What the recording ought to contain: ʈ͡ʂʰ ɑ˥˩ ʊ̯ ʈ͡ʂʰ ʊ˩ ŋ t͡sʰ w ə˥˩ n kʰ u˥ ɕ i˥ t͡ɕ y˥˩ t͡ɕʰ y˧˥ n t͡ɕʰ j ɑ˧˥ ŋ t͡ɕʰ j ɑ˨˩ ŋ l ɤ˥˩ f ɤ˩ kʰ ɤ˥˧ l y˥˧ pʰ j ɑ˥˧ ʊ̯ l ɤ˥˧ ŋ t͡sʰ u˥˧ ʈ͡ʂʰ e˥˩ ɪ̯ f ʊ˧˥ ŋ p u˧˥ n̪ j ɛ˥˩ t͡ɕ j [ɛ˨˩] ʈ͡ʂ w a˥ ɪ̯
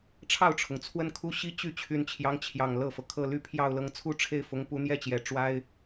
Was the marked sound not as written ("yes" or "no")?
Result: no